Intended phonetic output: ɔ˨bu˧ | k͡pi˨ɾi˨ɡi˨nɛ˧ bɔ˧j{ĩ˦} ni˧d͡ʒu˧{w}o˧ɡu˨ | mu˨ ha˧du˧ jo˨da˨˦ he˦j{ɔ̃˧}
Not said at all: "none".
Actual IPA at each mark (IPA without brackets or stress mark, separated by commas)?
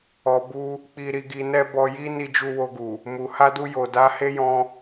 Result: i˦, w, ɔ̃˧